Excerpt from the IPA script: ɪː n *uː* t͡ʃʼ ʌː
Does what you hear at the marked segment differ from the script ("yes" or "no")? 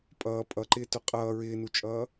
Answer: yes